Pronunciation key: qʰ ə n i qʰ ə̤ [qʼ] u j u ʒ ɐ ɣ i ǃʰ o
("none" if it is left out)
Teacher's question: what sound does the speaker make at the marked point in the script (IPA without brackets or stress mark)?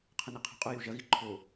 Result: qʼ